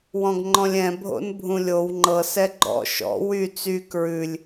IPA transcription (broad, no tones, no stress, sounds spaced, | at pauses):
w ɔ̃ ɡ ŋ͡ǃ ɔ̃ lʲ ɛ̃ bʱ o̰ n bʱ ũ lʲ o w ŋ͡ǃ ɤ s ɛ ɡ͡ǃ ɔ̰ ʃ ɔ̰ w y t͡s y k ɹ ʉ lʲ